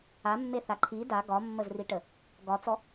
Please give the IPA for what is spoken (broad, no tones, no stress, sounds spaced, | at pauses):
a mː e θ a ǃʰ i d a ɡ ɒ mː ə z r i ʈ ə | ɡ ɒ t͡s ɔ